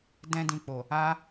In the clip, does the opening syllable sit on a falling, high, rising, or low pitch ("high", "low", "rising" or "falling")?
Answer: high